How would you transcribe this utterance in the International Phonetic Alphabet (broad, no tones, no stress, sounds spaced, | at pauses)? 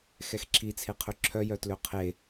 x ɛ x ǁʰ i t͡sʰ e qʰ ø ǁʰ œ j œ t l ø qʰ e